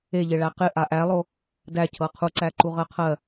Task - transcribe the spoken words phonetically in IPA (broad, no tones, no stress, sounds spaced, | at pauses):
e ʎ ɪ ɭ æ q ɪ ʔ a ʔ æ lˠ o | d æ cʰ ɤ qʰ u ǀ æ ǃ u ʁ ɜ qʰ ɜ